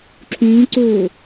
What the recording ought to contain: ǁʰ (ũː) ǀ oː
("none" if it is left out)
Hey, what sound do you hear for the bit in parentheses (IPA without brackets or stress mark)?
ũː